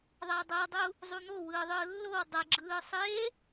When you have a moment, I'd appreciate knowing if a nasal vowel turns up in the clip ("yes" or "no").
no